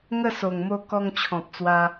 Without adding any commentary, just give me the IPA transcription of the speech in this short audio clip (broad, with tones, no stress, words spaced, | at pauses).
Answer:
ŋə˥˧so˨˩ŋ mo˧kɔ˧ŋ t͡ɕʰɔ̃˨p̚t͡swa˧